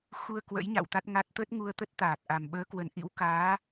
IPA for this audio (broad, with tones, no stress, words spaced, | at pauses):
xu˧ə̯kwə̰˧˥j ɲa̰˧˨w t̪a˦˥t̚ŋa˦˥t̚ t̪ə˦˥t̚ŋu˧ə̯t̪ə˦˥t̚ t̪aː˨˩k̚ʔa˨˩m ɓəː˨˦kwə˨˩nʔḭ˧˥wkaː˨˦